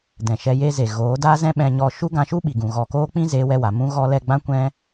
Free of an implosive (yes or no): no